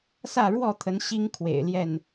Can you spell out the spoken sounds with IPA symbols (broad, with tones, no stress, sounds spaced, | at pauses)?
s ä˥˨ ɻ w ɔ˥˨ t̪ʰ ə˨˦ n ɕ i˦ ŋ kʰ w ḛ˨˩ ɪ̯ l j ɛ˥˨ n